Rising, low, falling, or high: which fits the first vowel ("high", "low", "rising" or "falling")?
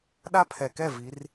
high